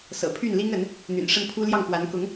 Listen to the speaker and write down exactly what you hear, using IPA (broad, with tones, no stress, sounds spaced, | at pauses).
s ɤ̰˨˩ pʰ y˥˩ n l i˥ ŋ ə˧˥ n | n̪ y̰˨˩ n ʂ ə˥˩ n pʰ u˥ l j ɑ˥˩ ŋ k w a˧˥ n k ʊ˧˥ ŋ